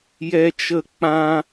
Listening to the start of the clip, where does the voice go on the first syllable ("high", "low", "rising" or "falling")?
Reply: high